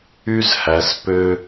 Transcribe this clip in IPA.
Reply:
y˦zhæ˧s pø˦

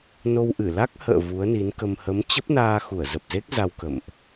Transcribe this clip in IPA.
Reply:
no˧wʔɨ˧˩ la˦˥k̚hə̰ː˧˨ vu˨˦ə̯ni˨˦nkə˧m hə˨˦mt͡ɕə˦˥p̚naː˧ xu˧˩ə̯zə˨˩p̚ze˦˥k̚ za˧wkə̰˧˨mʔ

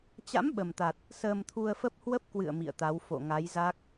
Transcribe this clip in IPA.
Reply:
t͡ɕa̰˧˥m ɓə˨˩mt̪a˨˩t̚ | səː˧mt̪ʰu˧ə̯fə˦˥p̚ hwə˦˥p̚kwɨ̰˧˨ə̯ mḭ˧˨ə̯t̪a˨˦w fo̰˧˨ŋa˨˦jza˦˥k̚

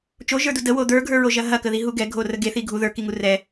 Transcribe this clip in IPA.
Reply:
t͡ʃoʒə˞du dəwo d̪ə˞ɡʱə˞ɹoʒɐ ɦɐkəðiɦu ɡɛɡʱorə ɡeθi ɡʱu ðə˞kiŋu rɛ

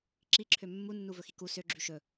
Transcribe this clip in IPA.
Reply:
ǁiǁʰø mːunːu vɵxiku sø ɡ͡ǁyʃɵ

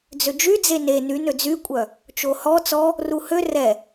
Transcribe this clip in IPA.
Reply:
d͡zød͡ʒy d͡zene ny nød͡zykʷʼœ | t͡ʃohɔ t͡sɔ | ruhø rɛ

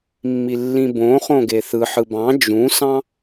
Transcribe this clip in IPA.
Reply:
mːilːĩbõχõ ɡeθɯħɯ bɑ̃ d͡ʒũsɑ̃

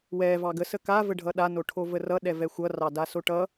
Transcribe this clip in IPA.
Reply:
wɛ vɑɡəsə kavə ɖʱʌɗa noʈʰovərʌ ɗɛvɛxʷʌ rɑdasoʈʌ

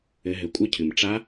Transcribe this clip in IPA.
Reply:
ɘ˩˧ɦɘ˩ kʷʼɘ˧˥cʰɨ˩m ʈ͡ʂa˧˥

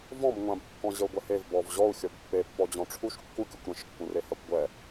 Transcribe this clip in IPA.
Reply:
vɔ̃bŋʷãb kːɔ̃ʑəu̯ɡʷɛhev bɔvʑɔu̯ xʲɔbpːe pːɔd͡ʑɔ̃ʈ͡ʂʰuʃ kːukʲukʷ ɾə̃ʃ kːũrehakʷɡʷɛ

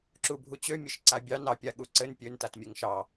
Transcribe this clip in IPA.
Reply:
ǁubʱut͡ɕø mʲɘʃǀabʲɑ nɑpʲa ɠuǀɘn pʲøntat mʲɘŋʃɑ

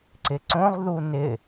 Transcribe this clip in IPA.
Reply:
ǀɪǀõʁ ðunɪ

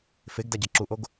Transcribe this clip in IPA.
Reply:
feɡdaɟɐ ǁuʔoɡ

